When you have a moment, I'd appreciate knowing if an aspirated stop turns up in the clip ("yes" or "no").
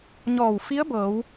no